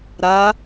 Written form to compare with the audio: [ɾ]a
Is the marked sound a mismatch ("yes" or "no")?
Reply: no